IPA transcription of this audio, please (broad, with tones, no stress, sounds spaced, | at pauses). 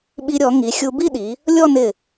ɓ i˧ ɾʲ ɔ˩˧ ŋ i˩˧ xʲ u˧ b i˥˧ ɗ i˩˧ | lʲ ɔ˥˧ n ɪ˧˩